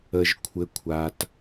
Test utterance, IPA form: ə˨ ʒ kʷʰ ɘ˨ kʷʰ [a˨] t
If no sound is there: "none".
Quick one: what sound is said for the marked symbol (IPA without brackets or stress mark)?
a˨